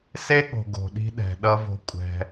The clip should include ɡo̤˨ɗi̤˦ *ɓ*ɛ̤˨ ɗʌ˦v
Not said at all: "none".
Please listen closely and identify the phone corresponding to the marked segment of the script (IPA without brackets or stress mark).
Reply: ɗ